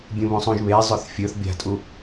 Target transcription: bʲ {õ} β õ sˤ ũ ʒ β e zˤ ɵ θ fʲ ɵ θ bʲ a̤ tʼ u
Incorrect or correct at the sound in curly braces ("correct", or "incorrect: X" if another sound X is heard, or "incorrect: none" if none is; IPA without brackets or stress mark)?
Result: incorrect: ũ